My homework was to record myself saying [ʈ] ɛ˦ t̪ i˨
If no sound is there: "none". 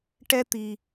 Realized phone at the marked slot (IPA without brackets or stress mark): ʈ